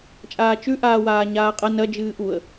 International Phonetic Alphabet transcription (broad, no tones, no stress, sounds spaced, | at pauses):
t͡ʃʼ aː t͡ʃ ʉ ʔ aː w aː ɲ aː qʼ ɐ n ɐ d͡ʒ ɨː ʔ u ə̯